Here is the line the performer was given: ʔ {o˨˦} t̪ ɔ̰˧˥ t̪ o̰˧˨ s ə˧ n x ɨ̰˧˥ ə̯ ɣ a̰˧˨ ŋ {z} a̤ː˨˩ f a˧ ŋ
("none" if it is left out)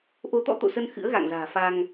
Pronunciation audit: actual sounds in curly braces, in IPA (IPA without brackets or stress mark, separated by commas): o˨˦, z